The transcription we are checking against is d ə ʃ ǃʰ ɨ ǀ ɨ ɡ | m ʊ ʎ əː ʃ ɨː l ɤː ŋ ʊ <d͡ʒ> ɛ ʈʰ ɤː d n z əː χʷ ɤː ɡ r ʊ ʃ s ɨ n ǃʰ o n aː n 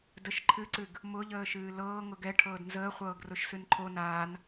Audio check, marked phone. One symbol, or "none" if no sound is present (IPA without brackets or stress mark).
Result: ɡ